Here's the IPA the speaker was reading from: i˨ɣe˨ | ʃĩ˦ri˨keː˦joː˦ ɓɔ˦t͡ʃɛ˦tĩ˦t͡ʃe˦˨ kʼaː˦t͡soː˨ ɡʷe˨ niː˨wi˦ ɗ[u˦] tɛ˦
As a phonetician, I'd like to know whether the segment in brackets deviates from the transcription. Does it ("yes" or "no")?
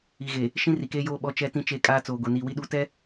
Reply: no